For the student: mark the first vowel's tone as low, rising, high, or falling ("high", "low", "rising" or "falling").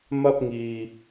high